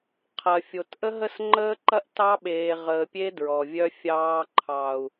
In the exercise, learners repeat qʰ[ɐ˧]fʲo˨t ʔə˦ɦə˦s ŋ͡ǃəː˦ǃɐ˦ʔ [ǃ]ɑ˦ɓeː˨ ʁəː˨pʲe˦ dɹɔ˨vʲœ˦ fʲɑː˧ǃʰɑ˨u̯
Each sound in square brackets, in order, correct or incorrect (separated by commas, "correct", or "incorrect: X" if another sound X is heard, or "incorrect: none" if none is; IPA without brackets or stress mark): incorrect: ɐ˨, incorrect: t